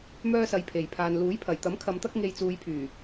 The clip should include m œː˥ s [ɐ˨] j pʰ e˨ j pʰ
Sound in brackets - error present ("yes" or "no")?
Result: yes